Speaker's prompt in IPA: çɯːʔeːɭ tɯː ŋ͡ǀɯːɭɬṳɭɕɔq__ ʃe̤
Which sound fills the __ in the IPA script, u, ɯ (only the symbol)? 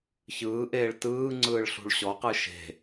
ɯ